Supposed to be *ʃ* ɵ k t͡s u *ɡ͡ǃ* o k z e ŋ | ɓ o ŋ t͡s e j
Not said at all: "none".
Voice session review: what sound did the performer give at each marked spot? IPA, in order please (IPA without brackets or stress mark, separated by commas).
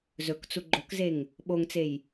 z, ɡ͡ǃ